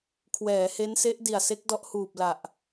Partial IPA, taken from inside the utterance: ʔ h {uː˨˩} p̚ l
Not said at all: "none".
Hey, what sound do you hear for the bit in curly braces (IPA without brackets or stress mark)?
uː˨˩